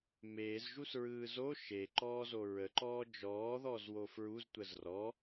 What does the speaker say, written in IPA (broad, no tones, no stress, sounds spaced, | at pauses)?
m eː z ʒ u s ɹ ɯː z o ʃ e ǃ ɔː z o ɹ ə ǃ ɔː d͡ʒ ɔː ð ɔ z w o f ɹ u z tʷ ə z r ɔ